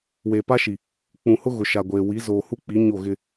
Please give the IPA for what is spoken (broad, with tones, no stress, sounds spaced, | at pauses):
w e˨ p a˦ ʃ i˨ | k͡p ũ˨ h ʊ˦ ɣ ʊ˨ ʃ a˨ ɡʷ eː˨ w i˨˦ z oː˨ h u˦ k͡p i˨˦ ɲ o˦˨ ɣ ɪ˦